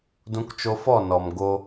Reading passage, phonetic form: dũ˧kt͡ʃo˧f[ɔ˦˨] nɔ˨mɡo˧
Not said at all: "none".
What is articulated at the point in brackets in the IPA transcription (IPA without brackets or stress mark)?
ɔ˦˨